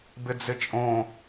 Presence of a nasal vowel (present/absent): present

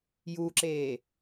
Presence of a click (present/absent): present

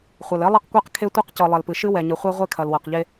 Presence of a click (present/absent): absent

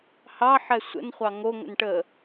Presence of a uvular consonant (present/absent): present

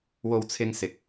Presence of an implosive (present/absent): absent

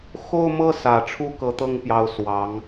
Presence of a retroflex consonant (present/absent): present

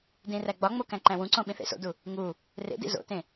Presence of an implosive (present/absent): present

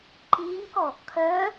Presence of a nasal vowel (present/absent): absent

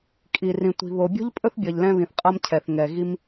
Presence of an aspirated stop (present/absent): present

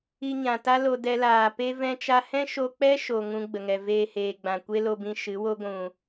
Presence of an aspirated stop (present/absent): absent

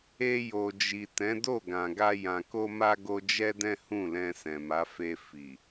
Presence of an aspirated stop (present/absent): absent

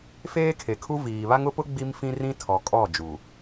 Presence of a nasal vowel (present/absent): present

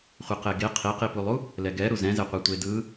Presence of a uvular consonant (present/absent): present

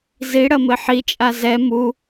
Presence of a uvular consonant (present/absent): absent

